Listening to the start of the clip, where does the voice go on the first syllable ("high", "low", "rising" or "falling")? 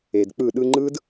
low